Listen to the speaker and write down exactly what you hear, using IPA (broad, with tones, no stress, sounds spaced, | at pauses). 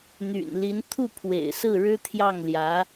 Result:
n̪ y̰˨˩ n l i˧˥ n t̪ʰ u˥˩ pʰ w ḛ˨˩ ɪ̯ s ɹ̩˥˩ ɻ ɻ̩˥ t̪ʰ j ɑ˥˩ ŋ l j ä˧˥